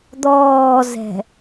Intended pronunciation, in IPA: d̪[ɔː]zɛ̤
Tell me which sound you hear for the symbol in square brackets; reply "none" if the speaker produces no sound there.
ɔː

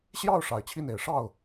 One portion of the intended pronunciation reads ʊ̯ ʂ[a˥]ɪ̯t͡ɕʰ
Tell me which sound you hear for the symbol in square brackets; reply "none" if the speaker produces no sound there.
a˨˩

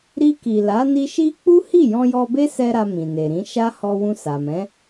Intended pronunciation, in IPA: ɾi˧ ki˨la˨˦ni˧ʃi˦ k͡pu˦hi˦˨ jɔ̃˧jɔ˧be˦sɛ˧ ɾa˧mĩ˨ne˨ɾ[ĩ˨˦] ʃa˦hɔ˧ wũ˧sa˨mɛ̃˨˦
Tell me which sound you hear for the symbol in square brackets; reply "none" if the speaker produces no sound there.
ĩ˨˦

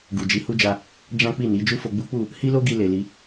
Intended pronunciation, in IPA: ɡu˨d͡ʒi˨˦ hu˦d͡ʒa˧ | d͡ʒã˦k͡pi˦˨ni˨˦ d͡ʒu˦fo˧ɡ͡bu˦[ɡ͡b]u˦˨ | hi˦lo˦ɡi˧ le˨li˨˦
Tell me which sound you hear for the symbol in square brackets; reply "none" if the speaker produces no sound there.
k͡p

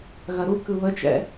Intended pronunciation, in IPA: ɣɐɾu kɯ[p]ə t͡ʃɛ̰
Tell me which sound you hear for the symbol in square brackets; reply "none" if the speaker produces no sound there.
β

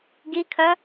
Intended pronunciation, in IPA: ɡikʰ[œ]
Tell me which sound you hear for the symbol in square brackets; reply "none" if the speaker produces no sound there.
œ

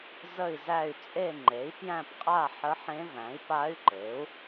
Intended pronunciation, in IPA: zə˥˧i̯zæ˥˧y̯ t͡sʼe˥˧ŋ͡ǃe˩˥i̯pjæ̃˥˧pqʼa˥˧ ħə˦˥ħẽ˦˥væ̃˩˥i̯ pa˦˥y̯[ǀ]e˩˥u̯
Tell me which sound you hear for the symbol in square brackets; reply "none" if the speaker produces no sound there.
ǃ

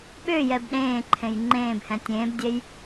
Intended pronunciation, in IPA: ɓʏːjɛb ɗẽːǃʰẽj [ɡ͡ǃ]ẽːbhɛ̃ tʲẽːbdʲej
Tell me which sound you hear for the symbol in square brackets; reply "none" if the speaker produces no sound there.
ŋ͡ǃ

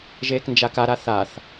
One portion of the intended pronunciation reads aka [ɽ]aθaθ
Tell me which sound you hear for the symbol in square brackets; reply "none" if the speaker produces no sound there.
ɾ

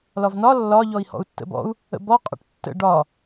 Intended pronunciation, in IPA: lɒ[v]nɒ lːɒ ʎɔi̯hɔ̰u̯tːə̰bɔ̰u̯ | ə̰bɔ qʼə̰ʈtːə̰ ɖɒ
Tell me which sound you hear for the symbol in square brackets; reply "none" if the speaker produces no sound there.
v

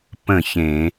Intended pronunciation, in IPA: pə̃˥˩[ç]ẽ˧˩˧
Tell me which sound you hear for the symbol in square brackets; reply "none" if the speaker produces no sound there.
ç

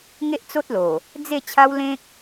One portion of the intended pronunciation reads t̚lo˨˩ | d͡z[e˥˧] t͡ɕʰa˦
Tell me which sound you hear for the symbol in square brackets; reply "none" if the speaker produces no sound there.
e˥˧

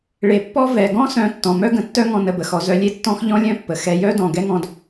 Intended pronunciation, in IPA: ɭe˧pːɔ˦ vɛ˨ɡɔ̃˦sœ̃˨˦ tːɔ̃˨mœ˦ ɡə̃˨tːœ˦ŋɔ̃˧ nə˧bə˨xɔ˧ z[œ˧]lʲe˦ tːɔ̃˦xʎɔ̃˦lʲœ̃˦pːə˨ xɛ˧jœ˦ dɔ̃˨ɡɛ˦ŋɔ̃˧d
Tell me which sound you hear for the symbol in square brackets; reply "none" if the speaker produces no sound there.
œ˧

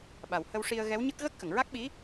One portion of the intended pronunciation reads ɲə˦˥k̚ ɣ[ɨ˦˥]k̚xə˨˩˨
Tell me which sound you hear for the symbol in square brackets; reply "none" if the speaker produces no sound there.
ə˦˥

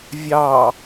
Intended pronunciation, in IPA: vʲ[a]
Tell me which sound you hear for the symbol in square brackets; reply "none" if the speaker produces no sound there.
ɑ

